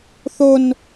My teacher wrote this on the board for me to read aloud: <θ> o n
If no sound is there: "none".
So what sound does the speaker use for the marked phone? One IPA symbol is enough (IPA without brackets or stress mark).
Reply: θ